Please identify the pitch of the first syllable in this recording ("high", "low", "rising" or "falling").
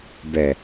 low